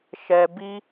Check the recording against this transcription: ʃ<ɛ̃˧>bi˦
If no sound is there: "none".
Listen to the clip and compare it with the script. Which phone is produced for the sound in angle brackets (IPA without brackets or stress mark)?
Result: ɛ˧